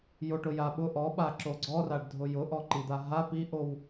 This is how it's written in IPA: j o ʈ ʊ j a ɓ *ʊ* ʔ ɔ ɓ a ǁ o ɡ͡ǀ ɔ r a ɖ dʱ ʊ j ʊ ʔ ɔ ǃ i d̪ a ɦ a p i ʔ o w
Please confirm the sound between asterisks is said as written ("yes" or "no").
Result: yes